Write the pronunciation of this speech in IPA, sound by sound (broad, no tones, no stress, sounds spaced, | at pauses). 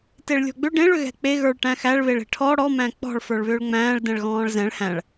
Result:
t e ɭ lʲ ɔ̤ ɡ͡b ʏ ɖ ẽ ɭ ʏ ɣ ɛ̤ k͡p e ɣ ə˞ ɭ ʈ æ̃ x æ ɭ β e ɭ e̤ ʈʰ ɔ ɽ ɔ m æ̃ k͡p ɔ̤ ɭ f ə˞ ɭ β ʏː ɭ ŋ͡m æ̃ː ɭ d ɛ̃ ɭ ɣ ɔ̃ː ɭ z ɛ̃ ɭ h æ̃ ɭ